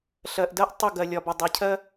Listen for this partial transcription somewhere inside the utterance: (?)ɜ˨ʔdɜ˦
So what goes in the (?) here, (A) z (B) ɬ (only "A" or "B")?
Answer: B